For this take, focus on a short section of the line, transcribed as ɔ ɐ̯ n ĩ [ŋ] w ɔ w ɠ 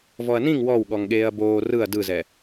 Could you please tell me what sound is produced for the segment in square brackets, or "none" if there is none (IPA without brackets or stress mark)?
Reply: ŋ